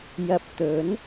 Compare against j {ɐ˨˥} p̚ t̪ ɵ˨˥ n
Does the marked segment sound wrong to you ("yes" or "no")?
yes